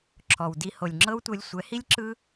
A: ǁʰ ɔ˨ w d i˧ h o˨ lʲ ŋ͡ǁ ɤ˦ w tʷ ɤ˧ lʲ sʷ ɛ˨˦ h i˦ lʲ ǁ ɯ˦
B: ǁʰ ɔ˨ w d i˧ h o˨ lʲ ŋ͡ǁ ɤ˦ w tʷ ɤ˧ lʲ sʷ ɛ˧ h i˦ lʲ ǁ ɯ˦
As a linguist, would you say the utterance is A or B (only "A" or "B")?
A